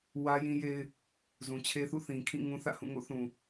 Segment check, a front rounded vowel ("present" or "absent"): absent